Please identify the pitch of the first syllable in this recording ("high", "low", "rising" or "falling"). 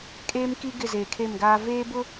high